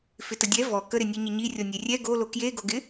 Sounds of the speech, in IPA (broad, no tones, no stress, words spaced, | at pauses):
fɪtədʲɛ vɔ kəɾɪnʲe ɲɪɲi rʲɔnʲerʲɛ ɡo lokjeɡoɡɪ